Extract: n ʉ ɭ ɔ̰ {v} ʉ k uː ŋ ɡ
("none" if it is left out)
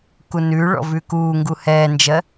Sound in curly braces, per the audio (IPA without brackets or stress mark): v